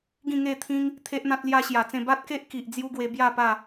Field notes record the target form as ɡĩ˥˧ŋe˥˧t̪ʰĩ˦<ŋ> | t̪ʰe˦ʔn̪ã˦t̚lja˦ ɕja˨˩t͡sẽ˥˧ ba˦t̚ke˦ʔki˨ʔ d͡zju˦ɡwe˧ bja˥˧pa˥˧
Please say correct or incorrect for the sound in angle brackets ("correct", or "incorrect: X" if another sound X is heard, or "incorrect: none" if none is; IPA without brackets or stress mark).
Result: correct